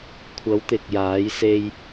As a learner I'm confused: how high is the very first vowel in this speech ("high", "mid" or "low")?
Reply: low